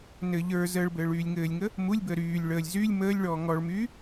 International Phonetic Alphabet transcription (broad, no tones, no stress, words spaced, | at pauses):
nɘ ʎə˞ zəːɭbɘːɭ yːlʲŋɘːlʲŋə | mulʲbəː ɾyːlʲ ɭəːlʲ zylʲ məːlʲɭɔː ŋɔɭmyː